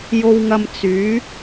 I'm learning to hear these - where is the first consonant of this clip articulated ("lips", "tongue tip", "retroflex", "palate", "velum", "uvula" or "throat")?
palate